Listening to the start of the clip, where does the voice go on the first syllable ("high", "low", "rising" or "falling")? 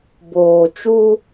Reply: low